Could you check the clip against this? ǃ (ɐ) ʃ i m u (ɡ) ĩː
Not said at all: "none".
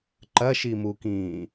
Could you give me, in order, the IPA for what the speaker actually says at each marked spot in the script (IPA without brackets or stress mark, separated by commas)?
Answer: ɐ, k